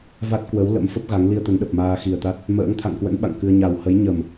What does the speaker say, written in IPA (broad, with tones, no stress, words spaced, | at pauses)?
va˦˥t̚ kwə˨˦w lə̰˧˥mfə˦˥p̚ɣa˨˦ŋ li˧ə̯t̪ə˨˦nɗə˨˩p̚ maː˧xi˨˩ə̯t̪a˦˥t̚ | mə̰ː˧˥ŋt̪ʰa̰˧˨ŋkwə̰˧˥n ɓa̰˧˨ŋkɨ˧ə̯ ɲa˨˩whə˨˦j ɲə˨˩m